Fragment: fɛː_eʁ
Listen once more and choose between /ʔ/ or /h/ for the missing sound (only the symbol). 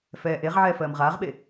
ʔ